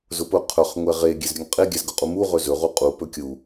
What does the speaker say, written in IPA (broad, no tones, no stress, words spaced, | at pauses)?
zʊpʊ qʰɵχ ŋʷɛʁe ɡʲezɾʲɵŋqʼe ɡʲæzɡʊqʼumu ʁɵzɵ ʁuqʼu pɵkʲu